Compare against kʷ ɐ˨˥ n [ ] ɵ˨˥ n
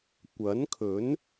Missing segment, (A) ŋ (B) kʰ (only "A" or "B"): B